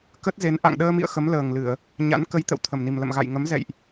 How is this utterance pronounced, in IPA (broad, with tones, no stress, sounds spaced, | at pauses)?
k ə˦˥ t̚ z e˨˦ n ʔ a̰˧˨ ŋ ɗ əː˧ m ḭ˧˨ ə̯ x ə˨˦ m l əː˨˩ ŋ l ɨ˧˩˨ ə̯ | ɲ a̰˧˥ n k ə˨˦ j t̪ ə̰˧˨ w t̪ʰ ə˨˩ m n i˨˩ m l ə̰˧˨ m ɣ a̰˧˨ j ŋ ə˨˦ m z ɛ̰˧˨ j ʔ